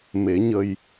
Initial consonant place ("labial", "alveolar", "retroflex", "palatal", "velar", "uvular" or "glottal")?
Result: labial